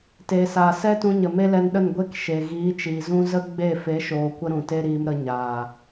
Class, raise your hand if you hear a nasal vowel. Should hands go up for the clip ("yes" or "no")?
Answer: yes